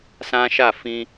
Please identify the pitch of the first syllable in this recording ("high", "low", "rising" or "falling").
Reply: high